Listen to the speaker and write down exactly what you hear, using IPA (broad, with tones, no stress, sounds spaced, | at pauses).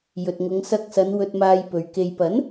j ɵ˨ t̚ ŋ ʊ˨˧ ŋ s ɐ˧ k̚ s ɐ˨˧ n w ɵ˧ t̚ m aː˧ j p ɵ˨ ɥ k e˨ j p ɐ˨˥ n